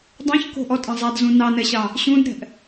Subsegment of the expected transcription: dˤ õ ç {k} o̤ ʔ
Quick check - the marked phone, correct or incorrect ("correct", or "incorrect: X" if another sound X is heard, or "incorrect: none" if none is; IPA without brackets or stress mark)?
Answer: correct